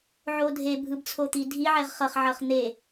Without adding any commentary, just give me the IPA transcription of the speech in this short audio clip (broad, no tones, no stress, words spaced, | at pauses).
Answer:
ʕodʱebʱɯb t͡sʰot̪idʱiʕɛʁ χʌχʕʌχ n̪e